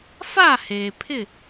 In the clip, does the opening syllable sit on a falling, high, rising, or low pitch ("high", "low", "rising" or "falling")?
falling